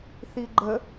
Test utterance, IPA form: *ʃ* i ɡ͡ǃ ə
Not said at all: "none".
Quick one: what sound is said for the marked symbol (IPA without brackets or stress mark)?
θ